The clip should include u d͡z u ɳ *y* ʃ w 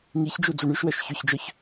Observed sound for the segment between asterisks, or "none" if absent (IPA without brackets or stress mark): y